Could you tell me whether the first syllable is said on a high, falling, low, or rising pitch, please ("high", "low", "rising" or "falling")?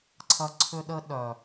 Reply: high